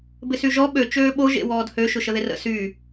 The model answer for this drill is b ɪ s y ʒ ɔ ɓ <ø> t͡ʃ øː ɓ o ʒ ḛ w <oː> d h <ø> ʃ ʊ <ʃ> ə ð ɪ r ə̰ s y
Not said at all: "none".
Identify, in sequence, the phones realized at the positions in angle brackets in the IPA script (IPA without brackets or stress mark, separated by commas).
ø, ɔː, ø, ʃ